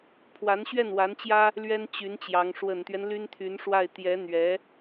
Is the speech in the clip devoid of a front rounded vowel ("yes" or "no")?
no